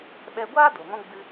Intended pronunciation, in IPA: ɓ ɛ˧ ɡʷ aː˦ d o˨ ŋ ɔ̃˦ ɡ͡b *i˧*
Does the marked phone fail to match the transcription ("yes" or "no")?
yes